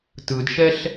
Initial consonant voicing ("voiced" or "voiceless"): voiceless